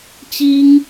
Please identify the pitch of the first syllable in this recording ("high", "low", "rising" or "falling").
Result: high